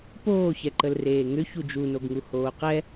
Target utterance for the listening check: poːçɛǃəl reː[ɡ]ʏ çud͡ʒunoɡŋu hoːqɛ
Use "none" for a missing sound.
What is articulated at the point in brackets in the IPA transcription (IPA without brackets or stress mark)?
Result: ŋ